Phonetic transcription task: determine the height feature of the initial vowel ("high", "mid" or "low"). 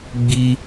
high